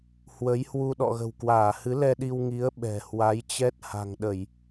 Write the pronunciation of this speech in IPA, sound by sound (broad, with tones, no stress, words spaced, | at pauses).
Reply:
hwə˨˦jhwu˧ ɗɔ̰˧˨ɣə̤˨˩wkwaː˧˩ hɨ˨˦lɛ˧ɗi˧w ŋi˨˦ə̯ ɓɛ̤˨˩hwa˨˦jt͡ɕɛ˦˥t̚ ha̤˨˩ŋɗə˧˩˨j